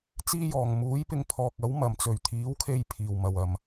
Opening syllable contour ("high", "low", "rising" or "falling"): high